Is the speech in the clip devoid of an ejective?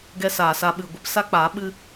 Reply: yes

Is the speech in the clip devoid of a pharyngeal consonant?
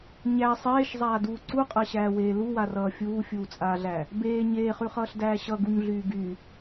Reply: yes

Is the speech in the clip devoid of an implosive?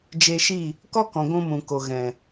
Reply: yes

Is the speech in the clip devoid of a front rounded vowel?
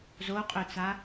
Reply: no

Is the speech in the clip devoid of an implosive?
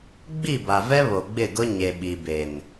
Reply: no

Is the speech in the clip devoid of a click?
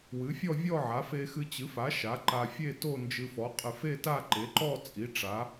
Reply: no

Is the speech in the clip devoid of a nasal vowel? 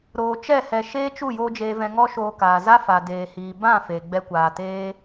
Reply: no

